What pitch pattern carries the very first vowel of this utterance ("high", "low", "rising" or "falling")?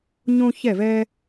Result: high